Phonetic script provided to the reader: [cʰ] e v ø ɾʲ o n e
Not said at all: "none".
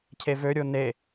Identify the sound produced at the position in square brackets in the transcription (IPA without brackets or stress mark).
cʰ